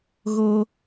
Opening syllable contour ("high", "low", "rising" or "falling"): high